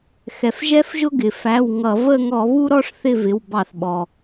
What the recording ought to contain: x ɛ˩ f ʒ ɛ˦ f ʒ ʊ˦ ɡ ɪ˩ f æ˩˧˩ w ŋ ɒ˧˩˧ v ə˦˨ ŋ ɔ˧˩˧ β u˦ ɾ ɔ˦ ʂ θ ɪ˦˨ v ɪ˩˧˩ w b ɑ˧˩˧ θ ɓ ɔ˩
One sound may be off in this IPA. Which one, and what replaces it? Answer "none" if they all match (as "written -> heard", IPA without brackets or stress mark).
ɒ˧˩˧ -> ʌ˧˩˧